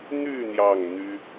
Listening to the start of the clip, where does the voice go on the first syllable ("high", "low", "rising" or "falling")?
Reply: falling